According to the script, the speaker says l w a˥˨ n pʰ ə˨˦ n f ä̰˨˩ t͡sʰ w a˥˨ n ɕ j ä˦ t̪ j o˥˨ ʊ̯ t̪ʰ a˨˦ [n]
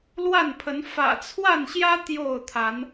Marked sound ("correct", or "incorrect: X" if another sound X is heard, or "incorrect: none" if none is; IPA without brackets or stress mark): correct